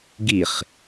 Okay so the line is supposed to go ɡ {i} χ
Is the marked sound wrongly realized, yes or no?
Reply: no